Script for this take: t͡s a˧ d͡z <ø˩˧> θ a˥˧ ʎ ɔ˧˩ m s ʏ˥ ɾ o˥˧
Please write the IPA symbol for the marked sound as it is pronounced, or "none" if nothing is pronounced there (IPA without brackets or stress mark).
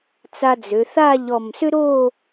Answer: ø˩˧